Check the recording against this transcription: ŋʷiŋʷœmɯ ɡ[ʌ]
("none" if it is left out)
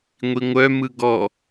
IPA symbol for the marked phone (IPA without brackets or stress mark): ɔ